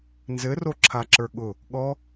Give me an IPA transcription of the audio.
nzɘroǁʰaǁə˞ ɠʊ | ɠɔ

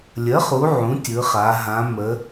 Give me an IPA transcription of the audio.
lʲə˩˥χu˩˧ ʕũ˩˥tʲɯ˩˧χa˩˧ ɦã˩˧ mə˩˧

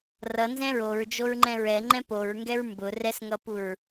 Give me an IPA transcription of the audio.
rʌ nzɛ̃ɹoɹd͡ʒoɹ ŋ͡ǃɛ̃ɹɛ ŋ͡ǃɛ̃poɹŋɡɛɹ mbʊ rɛsŋʌpuɹ

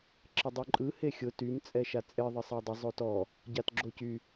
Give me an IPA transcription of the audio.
ǁɪdˤyǃʼɯ hexʲʊ tym t͡sʼɛʃat͡sʼɪ ðˤəsˤadˤə zˤotɔ | ɟatɡ͡ǁocy

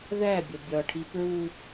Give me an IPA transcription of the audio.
ðæbʲɒ bʲɒʈʰi pɹu

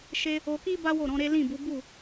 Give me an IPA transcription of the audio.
ʃe˧ | o˧ki˦ ba˦wo˦˨ɾɔ̃˨˦ɾe˦ lĩ˦˨bu˨˦ bu˦˨

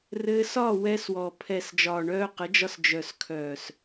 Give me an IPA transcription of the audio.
rɘː˧sɒː˦˨ wɛː˧swɔː˨pʰɛ˨s d͡ʒɒː˨ɳœː˧qə˨˦d͡ʒɒ˧s d͡ʒœ˨skʰœː˨s

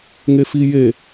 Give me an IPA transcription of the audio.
ŋefije

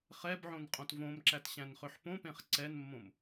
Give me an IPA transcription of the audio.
χɛbʕõn qʼõtvõmǁæt ɕæ̃nχʏħpõpẽχ ǀɛnmːõm

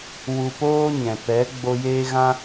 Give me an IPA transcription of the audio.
wu˧poː˦ɲɛ̃˨ pɛ˨˦ɡ͡bo˧ jeː˦ɣã˦

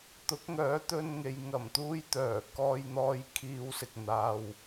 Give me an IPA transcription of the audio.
t̪ʊ˨˥k̚ŋœː˨˥t̪ɵ˧nŋe˨j ŋɐ˨˩mt̪uː˧jt̪œː˨˩ kɔː˧jn̪ɔː˧j kʰiː˧wsɪ˨k̚n̪aː˧w

